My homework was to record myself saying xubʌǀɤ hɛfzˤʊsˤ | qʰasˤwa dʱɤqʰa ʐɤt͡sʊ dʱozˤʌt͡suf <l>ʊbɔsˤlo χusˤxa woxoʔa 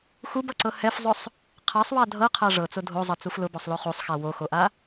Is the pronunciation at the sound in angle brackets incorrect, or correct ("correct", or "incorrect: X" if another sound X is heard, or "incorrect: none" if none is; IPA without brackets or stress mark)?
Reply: correct